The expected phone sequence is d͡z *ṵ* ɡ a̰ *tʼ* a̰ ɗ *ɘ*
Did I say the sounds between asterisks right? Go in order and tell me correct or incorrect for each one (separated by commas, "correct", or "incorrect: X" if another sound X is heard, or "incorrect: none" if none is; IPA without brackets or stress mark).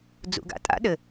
correct, correct, correct